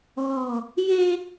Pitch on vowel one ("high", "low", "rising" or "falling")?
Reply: low